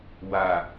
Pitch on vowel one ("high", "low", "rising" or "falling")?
low